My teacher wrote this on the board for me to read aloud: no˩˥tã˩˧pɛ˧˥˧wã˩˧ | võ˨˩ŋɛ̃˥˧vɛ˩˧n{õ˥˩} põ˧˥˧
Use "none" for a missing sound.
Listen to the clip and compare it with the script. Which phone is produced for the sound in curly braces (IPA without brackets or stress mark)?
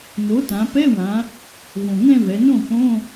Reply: õ˥˩